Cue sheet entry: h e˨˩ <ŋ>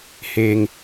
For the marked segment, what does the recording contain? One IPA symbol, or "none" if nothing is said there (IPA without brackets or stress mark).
ŋ